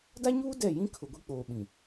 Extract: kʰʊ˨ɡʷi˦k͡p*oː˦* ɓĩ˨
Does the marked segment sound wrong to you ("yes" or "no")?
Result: yes